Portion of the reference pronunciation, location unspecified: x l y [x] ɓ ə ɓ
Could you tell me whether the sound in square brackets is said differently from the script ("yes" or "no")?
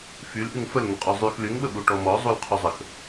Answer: yes